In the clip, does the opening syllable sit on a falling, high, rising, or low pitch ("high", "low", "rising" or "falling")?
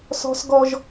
high